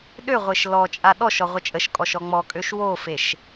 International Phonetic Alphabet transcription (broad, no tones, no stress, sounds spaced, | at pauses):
ɗ ø ʁʷ e ʃ l ɔ t͡ʃʼ a ɗ ɔ ʃ ɔ ʁʷ ə t͡ʃʼ ə ʃ kʼ ɔ ʃ ɔ ŋ͡m ɔ kʼ ø ʃ w o f e ʃ